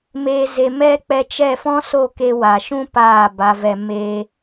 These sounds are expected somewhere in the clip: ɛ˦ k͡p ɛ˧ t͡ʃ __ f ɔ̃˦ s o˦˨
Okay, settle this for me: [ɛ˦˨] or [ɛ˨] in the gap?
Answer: ɛ˦˨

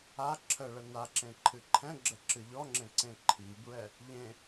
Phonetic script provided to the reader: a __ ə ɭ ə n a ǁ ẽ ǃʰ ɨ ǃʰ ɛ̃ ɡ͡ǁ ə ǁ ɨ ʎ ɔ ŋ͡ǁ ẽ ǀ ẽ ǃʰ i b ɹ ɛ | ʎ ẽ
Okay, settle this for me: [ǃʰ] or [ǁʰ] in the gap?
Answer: ǁʰ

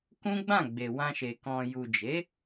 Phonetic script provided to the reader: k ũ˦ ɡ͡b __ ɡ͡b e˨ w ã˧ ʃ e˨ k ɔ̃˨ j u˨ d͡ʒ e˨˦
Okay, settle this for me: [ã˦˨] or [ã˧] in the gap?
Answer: ã˦˨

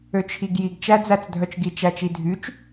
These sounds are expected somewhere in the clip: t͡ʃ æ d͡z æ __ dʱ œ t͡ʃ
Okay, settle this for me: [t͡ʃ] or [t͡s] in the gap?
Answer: t͡s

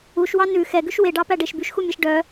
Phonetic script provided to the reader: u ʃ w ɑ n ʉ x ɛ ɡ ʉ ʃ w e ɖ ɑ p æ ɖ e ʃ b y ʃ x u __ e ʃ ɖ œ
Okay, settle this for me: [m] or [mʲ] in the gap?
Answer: mʲ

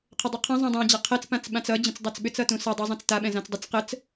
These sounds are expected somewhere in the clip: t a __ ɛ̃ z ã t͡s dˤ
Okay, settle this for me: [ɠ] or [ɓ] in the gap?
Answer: ɓ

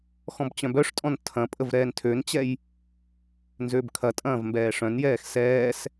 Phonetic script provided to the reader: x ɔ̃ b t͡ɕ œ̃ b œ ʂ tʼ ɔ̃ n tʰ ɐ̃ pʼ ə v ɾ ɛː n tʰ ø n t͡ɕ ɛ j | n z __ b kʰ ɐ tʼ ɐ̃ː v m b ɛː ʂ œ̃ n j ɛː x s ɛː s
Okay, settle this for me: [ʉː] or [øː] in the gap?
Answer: øː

